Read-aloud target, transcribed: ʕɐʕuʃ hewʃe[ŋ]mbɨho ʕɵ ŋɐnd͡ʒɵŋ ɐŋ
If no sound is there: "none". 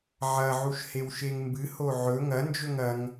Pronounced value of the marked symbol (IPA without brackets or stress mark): ŋ